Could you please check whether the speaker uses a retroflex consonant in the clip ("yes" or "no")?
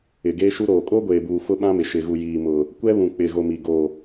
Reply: no